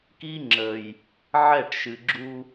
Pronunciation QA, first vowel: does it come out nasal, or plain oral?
oral